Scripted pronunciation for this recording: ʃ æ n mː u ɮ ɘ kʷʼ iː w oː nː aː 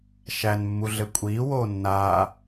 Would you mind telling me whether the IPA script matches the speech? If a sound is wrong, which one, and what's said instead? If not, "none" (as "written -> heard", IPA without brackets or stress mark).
none